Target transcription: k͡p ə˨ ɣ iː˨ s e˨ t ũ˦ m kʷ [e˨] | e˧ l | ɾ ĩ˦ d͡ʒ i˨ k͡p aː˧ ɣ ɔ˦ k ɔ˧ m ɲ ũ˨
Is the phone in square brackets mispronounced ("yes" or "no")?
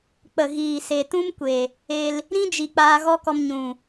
no